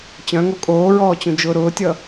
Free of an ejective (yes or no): no